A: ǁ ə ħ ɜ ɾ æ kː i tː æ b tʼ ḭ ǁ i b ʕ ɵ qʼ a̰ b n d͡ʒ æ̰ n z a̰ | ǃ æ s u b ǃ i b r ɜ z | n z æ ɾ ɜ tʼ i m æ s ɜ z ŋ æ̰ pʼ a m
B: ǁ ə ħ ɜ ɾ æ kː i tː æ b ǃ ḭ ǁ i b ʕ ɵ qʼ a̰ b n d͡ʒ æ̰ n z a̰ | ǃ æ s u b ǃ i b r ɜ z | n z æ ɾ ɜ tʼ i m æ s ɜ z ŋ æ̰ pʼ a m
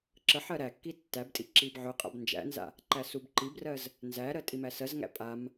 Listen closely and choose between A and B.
A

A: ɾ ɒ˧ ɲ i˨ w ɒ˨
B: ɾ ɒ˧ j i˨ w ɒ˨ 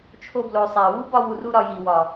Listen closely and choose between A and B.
B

